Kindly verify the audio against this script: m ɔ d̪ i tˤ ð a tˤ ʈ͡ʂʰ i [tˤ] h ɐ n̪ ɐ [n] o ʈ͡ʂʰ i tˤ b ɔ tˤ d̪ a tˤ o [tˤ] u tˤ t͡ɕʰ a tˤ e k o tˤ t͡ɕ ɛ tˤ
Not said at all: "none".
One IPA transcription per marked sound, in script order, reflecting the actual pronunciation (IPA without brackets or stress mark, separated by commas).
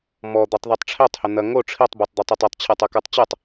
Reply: tˤ, ŋ, tˤ